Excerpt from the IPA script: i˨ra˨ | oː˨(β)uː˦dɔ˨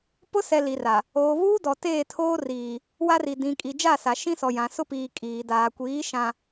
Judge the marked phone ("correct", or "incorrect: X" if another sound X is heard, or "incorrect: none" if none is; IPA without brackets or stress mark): correct